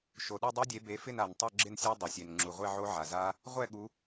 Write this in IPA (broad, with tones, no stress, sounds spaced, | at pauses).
ʃ o˩ ɗ u˥˨ dˤ a˦˥ dʲ e˨˦ b e˨˦ f ɪ˥˨ n a˩ n tˤ o˥˨ ɡ͡ǁ ɪ˥˨ n sʲ ɛ˦˥ dˤ ɪ˩ sʲ e˩ n ŋ͡ǁ u˩ ʁʷ e˥˨ ʕ o˦˥ ʕ a˩ z a˦˥ | ʁʷ ɛ˥˨ ɠ u˨˦